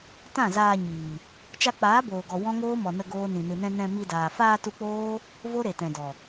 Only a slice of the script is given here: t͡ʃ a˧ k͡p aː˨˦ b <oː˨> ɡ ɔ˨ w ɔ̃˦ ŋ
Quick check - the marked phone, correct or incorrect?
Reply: correct